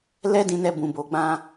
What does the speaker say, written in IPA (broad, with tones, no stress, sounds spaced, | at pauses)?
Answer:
l ɛ˦ d ĩ˧ n ɛ˧ b ũ˨ b o˨ ɡ͡b ã˧